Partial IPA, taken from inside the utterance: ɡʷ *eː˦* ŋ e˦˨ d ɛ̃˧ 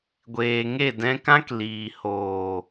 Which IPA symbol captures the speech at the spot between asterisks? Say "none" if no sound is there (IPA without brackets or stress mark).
eː˨